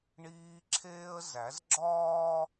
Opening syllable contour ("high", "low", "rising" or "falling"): high